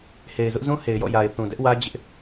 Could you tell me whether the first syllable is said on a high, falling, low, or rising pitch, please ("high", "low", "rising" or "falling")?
low